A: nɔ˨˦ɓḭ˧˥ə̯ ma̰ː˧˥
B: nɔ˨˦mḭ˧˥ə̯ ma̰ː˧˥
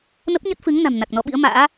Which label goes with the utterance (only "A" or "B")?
A